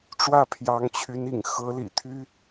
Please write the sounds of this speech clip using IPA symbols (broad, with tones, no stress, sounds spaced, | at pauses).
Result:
ʈ͡ʂ w ä˥˩ pʰ j ɑ˧˥ ŋ t͡ɕʰ y˧˥ n ḭ˨˩ ŋ x ɤ˧˥ l ḭ˨˩ t̪ʰ y˥